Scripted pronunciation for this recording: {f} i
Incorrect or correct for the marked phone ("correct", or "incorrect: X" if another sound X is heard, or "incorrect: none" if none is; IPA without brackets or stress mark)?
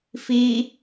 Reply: correct